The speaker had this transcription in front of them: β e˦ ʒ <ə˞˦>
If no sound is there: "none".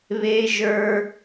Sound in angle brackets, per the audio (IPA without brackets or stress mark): ə˞˦